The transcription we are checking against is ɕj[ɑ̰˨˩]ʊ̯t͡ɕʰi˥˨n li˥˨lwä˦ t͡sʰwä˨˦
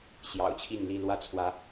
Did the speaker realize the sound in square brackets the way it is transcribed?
yes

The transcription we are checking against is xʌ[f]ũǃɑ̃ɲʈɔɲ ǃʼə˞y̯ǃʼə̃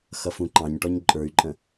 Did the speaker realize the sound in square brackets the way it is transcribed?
yes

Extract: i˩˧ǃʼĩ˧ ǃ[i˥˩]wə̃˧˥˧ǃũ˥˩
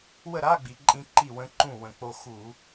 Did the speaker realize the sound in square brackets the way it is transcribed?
yes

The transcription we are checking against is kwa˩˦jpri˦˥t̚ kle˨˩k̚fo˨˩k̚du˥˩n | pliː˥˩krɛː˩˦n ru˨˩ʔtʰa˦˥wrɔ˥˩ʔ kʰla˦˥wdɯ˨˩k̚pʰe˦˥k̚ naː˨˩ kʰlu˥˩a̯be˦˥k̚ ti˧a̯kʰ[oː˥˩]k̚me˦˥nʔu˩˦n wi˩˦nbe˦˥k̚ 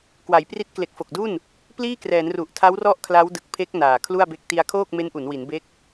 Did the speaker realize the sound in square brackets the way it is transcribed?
yes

